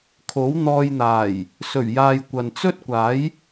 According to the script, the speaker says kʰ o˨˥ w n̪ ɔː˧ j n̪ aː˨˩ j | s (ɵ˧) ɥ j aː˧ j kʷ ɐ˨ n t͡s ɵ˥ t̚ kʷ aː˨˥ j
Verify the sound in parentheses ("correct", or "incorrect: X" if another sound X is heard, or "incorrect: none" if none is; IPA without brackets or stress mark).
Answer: incorrect: ɵ˨˩